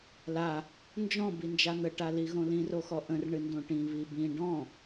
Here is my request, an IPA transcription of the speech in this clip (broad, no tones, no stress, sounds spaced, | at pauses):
l a | n d͡ʒ ɔ̃ b i n d͡ʒ a n̪ ə ʈ a l i ɣ õ l ĩ r o x ɔ ʔ ə̃ r ɳ ɨ n d õ ʈ ĩ β i b ĩ ɖ ɔ̃